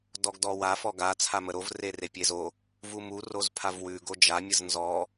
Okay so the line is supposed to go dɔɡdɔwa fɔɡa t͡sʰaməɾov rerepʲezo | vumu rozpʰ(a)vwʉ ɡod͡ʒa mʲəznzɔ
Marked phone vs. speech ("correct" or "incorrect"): correct